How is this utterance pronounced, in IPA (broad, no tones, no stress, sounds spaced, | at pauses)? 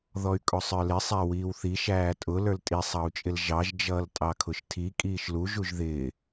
ð ɔ y̯ kʼ ʊ sˤ ə˞ l ɪ sˤ æ w iː w θ i ʃ æː tʼ ʊ l ə˞ l tʼ i sˤ ɑ u̯ t͡ʃʼ ɪ l ʒ ɑ ʒ d͡ʒ ʌː l tʼ ɑ kʰ ʊ ʃ tʰ i kʼ iː ʃ l u ʒ u ʒ ð ɪː